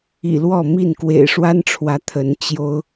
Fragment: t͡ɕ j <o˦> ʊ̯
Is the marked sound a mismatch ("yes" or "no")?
no